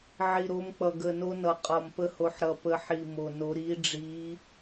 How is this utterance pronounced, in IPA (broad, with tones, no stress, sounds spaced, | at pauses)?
ʕ i˨˩ ɾ o˨˦ m k͡p ʌ˨˩ ɡ ə˨˩ n o˨˦ n ʌ˨˩ qʼ ɒ˨˩ m p ə˨˦ h o˨˦ ħ ɾ ʌ˨˩ p ə˨˦ ħ i˨˩ m o˨˩ n o˨˦ ɾ i˨˦ ɖ͡ʐ i˨˦